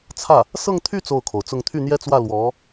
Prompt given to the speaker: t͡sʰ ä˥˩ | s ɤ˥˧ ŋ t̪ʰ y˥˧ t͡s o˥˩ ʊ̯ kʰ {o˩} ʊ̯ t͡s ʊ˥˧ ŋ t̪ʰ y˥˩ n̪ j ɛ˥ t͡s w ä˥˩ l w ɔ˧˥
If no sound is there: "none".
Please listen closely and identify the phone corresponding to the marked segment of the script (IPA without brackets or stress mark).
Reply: o˩